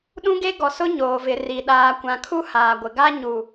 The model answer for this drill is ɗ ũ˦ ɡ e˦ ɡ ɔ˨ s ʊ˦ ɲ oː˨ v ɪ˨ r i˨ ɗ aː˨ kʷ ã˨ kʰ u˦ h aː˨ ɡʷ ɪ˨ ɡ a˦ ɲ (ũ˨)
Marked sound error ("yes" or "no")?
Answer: yes